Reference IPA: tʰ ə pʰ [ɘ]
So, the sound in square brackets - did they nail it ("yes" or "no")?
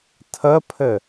yes